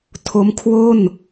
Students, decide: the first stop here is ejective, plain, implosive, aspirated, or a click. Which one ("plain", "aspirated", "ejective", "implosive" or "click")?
aspirated